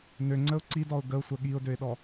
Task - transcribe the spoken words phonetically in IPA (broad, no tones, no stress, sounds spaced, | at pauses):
n ø ŋ͡ǀ ə ʊ̯ ǀ i d ɔ ʊ̯ ɡ ə ʊ̯ sʷ ə ɠ i ʊ̯ d ø ɪ̯ ɗ ɔ